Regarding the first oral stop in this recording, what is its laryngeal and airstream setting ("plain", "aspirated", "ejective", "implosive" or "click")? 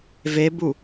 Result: plain